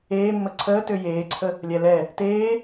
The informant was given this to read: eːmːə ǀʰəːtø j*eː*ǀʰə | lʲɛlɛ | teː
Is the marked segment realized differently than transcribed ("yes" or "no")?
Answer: no